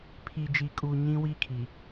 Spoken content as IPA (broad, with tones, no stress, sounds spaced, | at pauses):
pʰ i˨ d͡ʒ i˨ kʼ uː˨ ɲ ĩ˦ w i˦ kʰ i˨